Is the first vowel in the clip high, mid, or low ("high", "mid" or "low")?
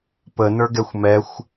mid